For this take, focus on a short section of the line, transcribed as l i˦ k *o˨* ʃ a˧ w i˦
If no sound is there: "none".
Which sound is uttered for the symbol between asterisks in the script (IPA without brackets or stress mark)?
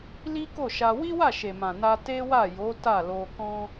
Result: o˦˨